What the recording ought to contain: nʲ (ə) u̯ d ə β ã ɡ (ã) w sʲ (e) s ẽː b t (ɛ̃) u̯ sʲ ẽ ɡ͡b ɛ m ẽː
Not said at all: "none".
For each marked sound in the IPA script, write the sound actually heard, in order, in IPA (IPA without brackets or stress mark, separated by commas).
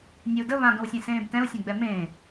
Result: ə, ə̃, ẽ, ɛ̃